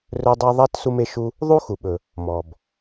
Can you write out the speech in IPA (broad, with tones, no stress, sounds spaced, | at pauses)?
r ɵ˥ dˤ e˥ ðˤ ɛ˥ t s u˥ m e˥ ʃ u˥ | ðˤ u˥ x u˩ ɓ ɵ˩ | m ɔ˩ b